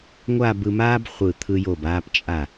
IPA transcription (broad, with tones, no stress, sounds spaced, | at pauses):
ŋʷ a˥˧ b ɯ˧ m aː˥ b χʷ ɯ˧˩ t̪ʰ ɯ˧ j o˧˩ b aː˧ p t͡ʃʼ a˧˩